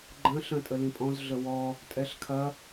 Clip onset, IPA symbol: ɡ͡ǃ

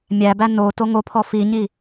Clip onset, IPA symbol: mʲ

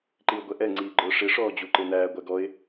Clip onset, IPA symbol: ǃ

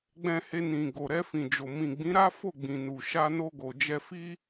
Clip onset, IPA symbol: ɡ͡b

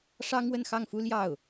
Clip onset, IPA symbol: ʂ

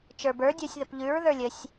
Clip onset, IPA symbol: t͡ʃ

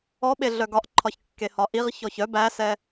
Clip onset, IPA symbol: ɔ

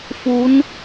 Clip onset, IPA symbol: f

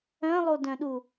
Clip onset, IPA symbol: œ̃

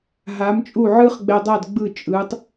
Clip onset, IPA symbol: ɦ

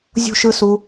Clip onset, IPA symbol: zʲ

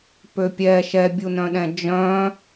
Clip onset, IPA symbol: p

